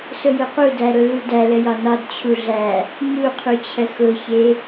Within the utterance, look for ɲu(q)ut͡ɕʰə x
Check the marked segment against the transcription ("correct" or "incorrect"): incorrect